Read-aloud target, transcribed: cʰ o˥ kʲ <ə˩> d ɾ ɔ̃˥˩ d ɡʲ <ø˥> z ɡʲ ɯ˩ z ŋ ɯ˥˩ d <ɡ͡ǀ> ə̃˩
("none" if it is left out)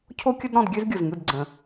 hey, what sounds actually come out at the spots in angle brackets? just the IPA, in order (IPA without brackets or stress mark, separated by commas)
ə˥, ø˥, ɡ͡ǀ